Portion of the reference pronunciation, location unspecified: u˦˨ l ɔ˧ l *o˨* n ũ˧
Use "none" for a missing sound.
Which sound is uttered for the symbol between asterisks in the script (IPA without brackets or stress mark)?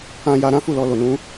o˨